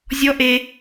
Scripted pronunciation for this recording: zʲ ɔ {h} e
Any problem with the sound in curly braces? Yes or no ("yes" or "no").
yes